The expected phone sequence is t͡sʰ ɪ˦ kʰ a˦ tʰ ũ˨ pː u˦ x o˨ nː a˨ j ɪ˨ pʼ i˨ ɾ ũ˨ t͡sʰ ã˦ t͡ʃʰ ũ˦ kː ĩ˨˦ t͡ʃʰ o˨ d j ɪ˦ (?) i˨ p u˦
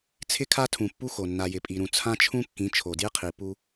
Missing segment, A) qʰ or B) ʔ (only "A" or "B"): A